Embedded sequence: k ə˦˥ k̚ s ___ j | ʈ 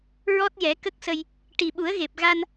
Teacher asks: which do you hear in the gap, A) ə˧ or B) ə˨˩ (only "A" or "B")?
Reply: A